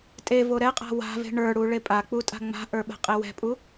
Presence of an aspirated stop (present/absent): absent